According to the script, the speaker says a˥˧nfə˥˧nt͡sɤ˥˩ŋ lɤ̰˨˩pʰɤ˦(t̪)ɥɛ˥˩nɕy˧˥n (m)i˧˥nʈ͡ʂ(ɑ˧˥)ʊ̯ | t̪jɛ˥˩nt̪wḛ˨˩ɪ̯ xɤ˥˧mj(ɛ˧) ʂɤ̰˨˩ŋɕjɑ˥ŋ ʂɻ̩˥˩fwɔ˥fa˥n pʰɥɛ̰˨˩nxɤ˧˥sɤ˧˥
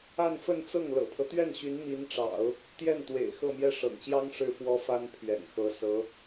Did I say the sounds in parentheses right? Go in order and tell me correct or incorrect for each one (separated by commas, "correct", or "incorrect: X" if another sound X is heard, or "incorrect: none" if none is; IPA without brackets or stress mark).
correct, correct, incorrect: ɑ̰˨˩˦, incorrect: ɛ˥˩